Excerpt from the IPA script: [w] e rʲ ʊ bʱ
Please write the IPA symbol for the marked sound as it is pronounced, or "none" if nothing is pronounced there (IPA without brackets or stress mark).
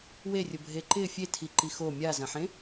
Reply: w